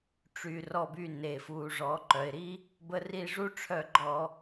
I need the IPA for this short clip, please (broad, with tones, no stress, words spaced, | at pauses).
ʈ͡ʂy˩rɔ˧˩by˧˩ ne˩fu˩ʐɔ˩˧ ǃœ˩ɪ̯ɾi˦˥ | bə˧˩ ri˧˩ʐu˦˥ʈ͡ʂʰœ˧˩ɡ͡ǃɔ˧˩˧